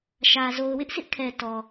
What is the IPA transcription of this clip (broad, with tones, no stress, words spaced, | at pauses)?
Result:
ʃä˨ zo˨ʊ̯wɪ˦ʔsʰɪ˦ʔkʰɛ˨ tɔ˨